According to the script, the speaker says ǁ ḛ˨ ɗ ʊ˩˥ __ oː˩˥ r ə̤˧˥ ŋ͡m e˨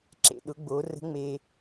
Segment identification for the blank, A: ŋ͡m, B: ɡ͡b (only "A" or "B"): B